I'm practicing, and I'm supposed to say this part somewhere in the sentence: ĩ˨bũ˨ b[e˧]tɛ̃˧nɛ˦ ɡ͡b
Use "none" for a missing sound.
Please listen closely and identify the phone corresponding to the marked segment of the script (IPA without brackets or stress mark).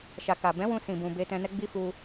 e˧